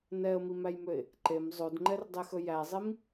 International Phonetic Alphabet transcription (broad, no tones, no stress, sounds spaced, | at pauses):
n ɛ ə̯ m i m æ j m ø ɪ̯ | ǃ e m zˤ o d ŋ͡ǃ ɛ r dˤ i x ɵ j æ zˤ i m